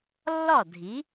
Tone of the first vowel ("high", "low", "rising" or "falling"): falling